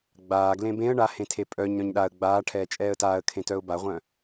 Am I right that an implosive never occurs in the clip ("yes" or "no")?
no